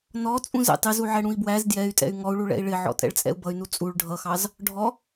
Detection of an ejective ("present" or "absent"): present